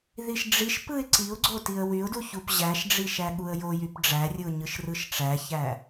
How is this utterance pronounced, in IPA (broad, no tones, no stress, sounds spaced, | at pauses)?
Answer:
ð i ʃ ɖ͡ʐ i ʃ p ɯ ɪ̯ ǀ i ʊ̯ ɡ͡ǀ o t i ə̯ w y ʊ̯ d u ç u p ʑ æ ʃ ɖ͡ʐ i ʃ æ ɠ u ə̯ j o j y p ɖ͡ʐ æ rʲ ɯ ʊ̯ ɲ ɯ ʃ r ɯ ʃ ʈ͡ʂ æ ç æ